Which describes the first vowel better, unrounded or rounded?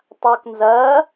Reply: unrounded